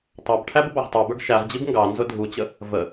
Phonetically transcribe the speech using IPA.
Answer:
tˤ ɑ b ʈʰ æ b ə b ɑ ʁ tˤ ə˞ b ə˞ ɡ ʃ æ ʁ d͡ʑ i b ŋ ɡ ɑ n z ʊ dʱ u t͡ɕ ə | v ə

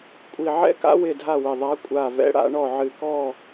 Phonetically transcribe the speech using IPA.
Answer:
kʷʼ i˨˩ ʕ ɛ̰˦˥ k a̰˦˥ w ɪ˦˨ dʱ a˦˨ w ɪ˨˩ ðˤ a˨˦ kʷʼ a˨˩ v ɛ̰˨˦ ɽ a̰˨˦ ɳ ɔ˦˨ ʕ ɨ˨˩ k ɔ˦˨

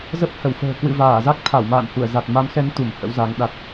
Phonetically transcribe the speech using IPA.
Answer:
z ə˦˥ p̚ h ə˧˩ w f ə̤ː˨˩ k w ɨ̰˧˨ v aː˧˩ z a˦˥ k̚ t̪ʰ a˧˩ w m a̰ː˧˨ n h u˧˩ ə̯ z a˨˩ t̚ m a˨˦ m x ɛ˨˦ n t̪ u˧˩ m h ə̰˧˥ w z a˨˦ ŋ ɗ a˦˥ t̚

